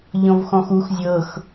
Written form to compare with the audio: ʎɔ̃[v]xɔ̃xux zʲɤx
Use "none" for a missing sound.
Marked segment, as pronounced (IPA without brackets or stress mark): v